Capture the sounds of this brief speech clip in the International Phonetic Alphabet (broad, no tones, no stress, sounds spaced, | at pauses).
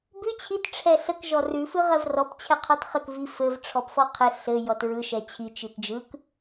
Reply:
b ʉ t͡ɕʰ i t ʈ͡ʂʰ ɛ ɬ ə k ʒ ɔ r ʉ f ɯ ʁ ɜ v r ɔ p t͡ɕʰ ɛ qʰ ɔ t χ ə k v i f ɘ v ʈ͡ʂʰ ɔ p f ɔ qʰ ɛ ɬ ɘ j ɔ t ɹ ɯ ʃ ɛ t͡ɕʰ i t͡ʃ i t d͡ʒ ɯ k